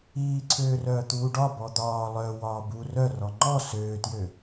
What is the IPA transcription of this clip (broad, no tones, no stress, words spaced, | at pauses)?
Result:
iːǀʰøːrœː t̪uːɖɒ bɔd̪ɒː lˠœ wɒːbu rœrɔ ŋ͡ǃɔ søːtjø